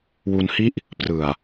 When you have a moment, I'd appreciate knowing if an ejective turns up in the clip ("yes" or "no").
no